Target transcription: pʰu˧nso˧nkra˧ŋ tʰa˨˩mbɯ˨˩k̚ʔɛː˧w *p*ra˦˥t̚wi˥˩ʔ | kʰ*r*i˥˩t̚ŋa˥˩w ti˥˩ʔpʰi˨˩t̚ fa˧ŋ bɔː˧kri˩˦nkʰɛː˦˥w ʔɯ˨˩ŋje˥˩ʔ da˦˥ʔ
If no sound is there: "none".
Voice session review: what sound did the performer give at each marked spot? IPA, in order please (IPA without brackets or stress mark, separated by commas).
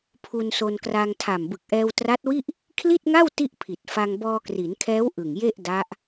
t, l